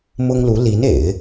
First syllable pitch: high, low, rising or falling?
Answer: high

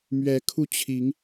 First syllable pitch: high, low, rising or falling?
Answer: rising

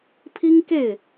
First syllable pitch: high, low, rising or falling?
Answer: high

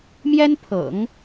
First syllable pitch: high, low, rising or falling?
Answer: high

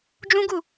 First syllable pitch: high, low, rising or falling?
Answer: high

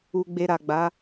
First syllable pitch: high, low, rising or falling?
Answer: low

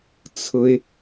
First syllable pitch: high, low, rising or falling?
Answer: high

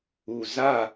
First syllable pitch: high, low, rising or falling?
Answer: low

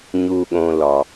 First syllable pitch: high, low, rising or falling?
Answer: low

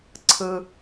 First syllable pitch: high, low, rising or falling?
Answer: low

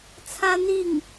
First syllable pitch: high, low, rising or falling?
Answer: high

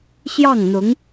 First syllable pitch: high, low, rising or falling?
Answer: falling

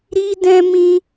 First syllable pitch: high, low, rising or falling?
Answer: high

